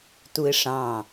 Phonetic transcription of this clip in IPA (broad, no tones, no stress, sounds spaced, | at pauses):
t u ɪ̯ ʂ ɑ̃